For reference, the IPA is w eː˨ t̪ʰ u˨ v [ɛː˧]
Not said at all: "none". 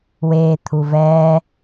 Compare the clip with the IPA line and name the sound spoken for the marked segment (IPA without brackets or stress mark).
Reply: ɛː˧